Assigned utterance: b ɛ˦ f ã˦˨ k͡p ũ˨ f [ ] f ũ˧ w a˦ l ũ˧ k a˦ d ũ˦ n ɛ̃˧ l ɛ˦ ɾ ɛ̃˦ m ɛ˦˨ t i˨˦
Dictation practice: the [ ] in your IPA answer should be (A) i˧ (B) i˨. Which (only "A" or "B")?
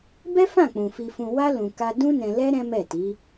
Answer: A